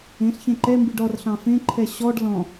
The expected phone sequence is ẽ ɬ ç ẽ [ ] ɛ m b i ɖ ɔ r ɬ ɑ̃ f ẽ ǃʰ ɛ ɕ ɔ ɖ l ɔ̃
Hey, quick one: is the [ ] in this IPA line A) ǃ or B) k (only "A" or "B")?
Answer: A